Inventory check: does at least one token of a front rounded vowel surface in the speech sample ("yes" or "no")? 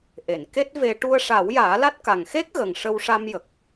no